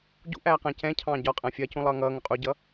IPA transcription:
ɟṵʔæː qæ̃cɛ̃cʰɑ̃ː ɟɒ qʼæ̃fʲɜcũ lˠʌːŋʌːŋʊ qʼuɟʌ

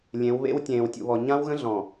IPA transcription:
lʲẽ˨˦wβḛ˦w tʲẽː˨wtʲṵ˨βɔ˨ ɲã˦wɣə̃˦ ɮɔ̃˨

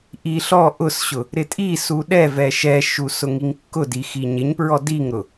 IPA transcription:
ʔi ɬɔ ʔʊsɕʊ | ɾɪtʼisu ɗɛvɛ ʃɛʃu sʊŋiŋkːʊdi xiɲɪɲpɹɔ diŋɾʊ

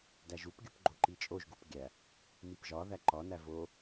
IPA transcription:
dæʒupɡʲup ɡ͡ǃoǃit͡ʃʼoʒɡup ɡʲæ | mipʒɒðæ ǃɒnæ vo

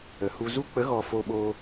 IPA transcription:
ə˨ hu˨zu˧k͡pə˨˦ɣɔ˨ fo˧ɓoː˧

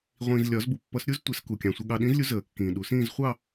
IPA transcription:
ʁʷĩː˨zlʲɒ˨˩˦z bu˨pːʌ˨˦sɾʲu˥˧ztʷɛ˨˩˦s ku˨kʲɑ̃˨ sʷʌ˨ɠɑ˨ɗĩ˨˦zlʲu˨˦ zəː˨˩˦kːĩː˨ɗu˨˩˦sĩː˥˧z χʷɑ˥˧

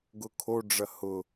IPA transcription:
ɡʊkʰoɖ͡ʐɐ hʊ

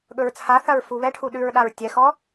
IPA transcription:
ɠɵɹt͡sʰaθɐɹ fuβɛʈʰu ɗʉɹɗaɹ tʲɛxɔ

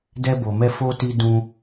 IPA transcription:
dɛ˧bo˨mɛ˧ fo˧ti˧ dũ˧

